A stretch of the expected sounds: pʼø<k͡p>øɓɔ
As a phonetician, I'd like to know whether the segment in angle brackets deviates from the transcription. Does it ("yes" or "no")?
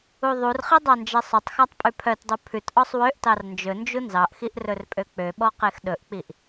no